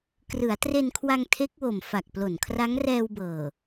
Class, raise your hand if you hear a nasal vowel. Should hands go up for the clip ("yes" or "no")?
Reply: no